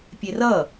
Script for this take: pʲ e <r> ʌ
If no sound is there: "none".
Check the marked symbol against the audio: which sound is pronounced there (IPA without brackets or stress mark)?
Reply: r